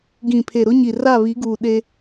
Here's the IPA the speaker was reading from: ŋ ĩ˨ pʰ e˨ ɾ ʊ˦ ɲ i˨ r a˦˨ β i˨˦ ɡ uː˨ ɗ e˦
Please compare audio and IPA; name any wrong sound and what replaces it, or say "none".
ŋ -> ɡ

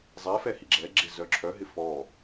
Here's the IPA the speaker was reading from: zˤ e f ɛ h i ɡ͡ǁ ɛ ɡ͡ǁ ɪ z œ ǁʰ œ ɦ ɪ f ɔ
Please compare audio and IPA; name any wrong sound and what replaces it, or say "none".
none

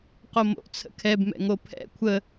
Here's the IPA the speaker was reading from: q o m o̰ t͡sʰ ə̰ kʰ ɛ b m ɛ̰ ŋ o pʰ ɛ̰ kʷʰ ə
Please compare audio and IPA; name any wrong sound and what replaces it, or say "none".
none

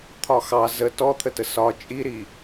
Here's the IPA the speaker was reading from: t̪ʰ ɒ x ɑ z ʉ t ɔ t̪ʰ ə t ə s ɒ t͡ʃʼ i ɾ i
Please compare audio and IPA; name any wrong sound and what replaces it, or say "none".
ʉ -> ə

